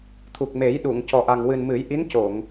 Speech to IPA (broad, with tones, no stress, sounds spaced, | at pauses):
t̪ʰ u˨˩ k̚ m e˨˩˦ j ɗ u˨˩˨ ŋ c ɔ˨˩ ʔ a˨˩ ŋ w ɨ˨˩ n m ɨ˨˩˦ j ʔ i˧˥ n c o˨˩˨ ŋ